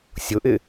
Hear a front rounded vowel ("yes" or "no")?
no